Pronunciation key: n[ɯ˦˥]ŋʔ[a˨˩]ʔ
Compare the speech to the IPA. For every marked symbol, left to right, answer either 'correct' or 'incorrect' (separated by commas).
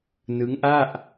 correct, incorrect